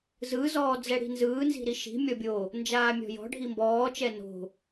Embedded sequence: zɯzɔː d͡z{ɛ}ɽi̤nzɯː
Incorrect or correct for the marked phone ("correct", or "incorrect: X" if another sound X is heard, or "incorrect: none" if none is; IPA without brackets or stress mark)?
correct